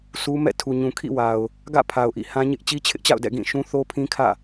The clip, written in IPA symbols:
sʰu˦mɛ̰˦˨ tʰu˨ɲũ˨kʰḭ˦˨wa˨ʊ̯ | ɡä̰˦˨pʰa˨ʊ̯ʔḭ˦˨ hã˦ ɲɪ˦ʔ t͡ɕi˦t͡ɕʰɪ˦ʔt͡ɕa̰˦˨ʊ̯dɛ̰˦˨ ɡĩ˦˨ ʃũ˦θo˦pʰĩ˦kʰä̰˦˨

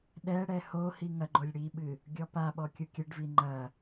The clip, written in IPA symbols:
ɗɛ ɽɛhohi ŋɐɡ͡ǃolʲ ɽiɓɨ | ɡʲɔpaɓɔ kʲukʲɘɖvi ŋ͡ǃɐ

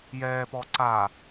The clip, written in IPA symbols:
jɛːpɔ ǀa

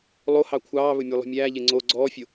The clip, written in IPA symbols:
lˠohɑ kʷʰɑːβɵmʲelˠṳ mʲæːʎe ŋ͡ǀo ɡ͡ǀɔːfʲo

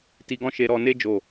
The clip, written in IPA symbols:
ti˧ɡɔ̃˦ ʃe˧ɾɔ˧ne˦ d͡ʒo˦˨

